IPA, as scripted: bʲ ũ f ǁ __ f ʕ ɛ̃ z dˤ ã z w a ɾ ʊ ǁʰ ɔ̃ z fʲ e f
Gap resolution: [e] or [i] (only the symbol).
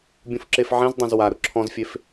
e